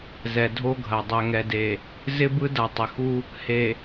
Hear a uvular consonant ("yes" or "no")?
no